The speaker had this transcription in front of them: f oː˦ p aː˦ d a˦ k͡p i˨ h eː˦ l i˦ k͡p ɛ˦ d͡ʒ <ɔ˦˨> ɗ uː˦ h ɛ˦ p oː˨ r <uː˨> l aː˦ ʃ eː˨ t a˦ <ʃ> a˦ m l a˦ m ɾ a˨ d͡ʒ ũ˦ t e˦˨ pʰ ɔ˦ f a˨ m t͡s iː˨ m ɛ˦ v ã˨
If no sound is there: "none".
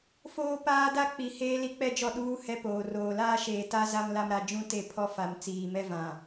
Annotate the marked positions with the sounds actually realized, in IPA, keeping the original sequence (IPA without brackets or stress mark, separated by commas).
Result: ɔ˦˨, oː˨, z